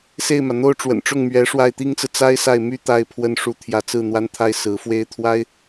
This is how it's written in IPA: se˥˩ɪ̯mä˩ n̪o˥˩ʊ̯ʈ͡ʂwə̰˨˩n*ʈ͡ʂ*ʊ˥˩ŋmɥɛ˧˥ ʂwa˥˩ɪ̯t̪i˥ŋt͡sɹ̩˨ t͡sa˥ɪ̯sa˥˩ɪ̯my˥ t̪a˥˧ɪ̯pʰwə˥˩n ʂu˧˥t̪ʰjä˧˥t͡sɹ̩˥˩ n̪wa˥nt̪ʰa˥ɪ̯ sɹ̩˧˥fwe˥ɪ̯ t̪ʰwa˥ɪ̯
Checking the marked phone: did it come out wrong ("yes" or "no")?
no